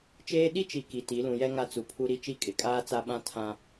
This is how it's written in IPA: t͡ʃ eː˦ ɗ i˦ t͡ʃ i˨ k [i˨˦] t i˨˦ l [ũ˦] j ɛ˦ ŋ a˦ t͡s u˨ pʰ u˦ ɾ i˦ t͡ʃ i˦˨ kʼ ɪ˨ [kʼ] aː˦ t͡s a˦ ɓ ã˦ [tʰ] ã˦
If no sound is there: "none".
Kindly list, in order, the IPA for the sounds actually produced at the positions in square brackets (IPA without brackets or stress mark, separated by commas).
i˨, ũ˨, kʼ, tʰ